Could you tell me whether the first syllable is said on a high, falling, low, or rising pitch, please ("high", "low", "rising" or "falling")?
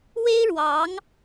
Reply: high